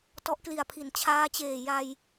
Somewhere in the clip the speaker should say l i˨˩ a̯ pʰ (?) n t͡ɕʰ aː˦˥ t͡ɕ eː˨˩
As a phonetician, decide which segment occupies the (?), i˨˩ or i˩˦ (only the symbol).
i˩˦